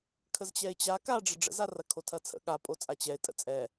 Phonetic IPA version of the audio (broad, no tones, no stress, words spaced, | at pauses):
kʰəzt͡ɕɛɪ̯t͡ɕa ka ɖ͡ʐəɖ͡ʐə̰zarɐ kʰotʰɐt͡sʰə̰ ɠapʼot͡sʼa t͡ɕɛɪ̯ tʼə̰t͡sʼɛ